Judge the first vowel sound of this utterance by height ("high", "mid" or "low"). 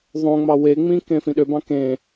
mid